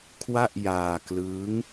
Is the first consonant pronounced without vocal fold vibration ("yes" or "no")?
yes